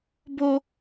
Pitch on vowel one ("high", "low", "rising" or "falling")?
high